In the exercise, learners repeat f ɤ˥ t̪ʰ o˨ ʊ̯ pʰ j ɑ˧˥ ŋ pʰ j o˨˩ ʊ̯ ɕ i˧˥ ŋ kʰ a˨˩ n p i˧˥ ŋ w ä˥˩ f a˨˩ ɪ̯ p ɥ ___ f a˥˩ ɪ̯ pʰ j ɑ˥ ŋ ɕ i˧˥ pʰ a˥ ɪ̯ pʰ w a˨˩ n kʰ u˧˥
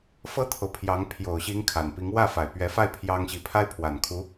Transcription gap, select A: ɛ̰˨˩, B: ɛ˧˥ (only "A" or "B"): B